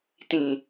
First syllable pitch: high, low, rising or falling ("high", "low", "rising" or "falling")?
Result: low